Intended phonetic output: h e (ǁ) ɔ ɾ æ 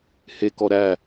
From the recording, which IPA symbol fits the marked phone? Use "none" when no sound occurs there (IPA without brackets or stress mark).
k